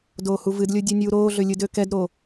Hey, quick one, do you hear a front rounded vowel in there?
yes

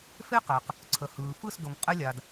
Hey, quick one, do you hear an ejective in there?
yes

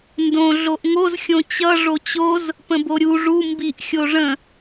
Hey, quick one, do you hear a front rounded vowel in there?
no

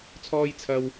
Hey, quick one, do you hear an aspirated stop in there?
yes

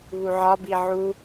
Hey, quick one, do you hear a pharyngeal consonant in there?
yes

